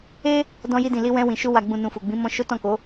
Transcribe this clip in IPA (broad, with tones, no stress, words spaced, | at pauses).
e˦ | dɔ̃˧ji˧dĩ˨ li˧wɛ̃˧ wĩ˨ʃu˧ wa˨ɡ͡bũ˨ nũ˨fu˨ ɡ͡bĩ˨˦mɔ̃˧ʃo˦tɔ̃˦˨ ko˨˦